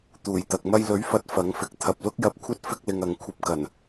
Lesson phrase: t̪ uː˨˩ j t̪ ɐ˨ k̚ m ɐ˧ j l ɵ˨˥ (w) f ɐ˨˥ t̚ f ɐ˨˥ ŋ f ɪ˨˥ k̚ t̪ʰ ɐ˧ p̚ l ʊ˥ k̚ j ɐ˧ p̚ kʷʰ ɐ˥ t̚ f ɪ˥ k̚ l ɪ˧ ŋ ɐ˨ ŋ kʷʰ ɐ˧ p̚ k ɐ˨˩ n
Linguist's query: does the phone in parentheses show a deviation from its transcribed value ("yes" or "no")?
yes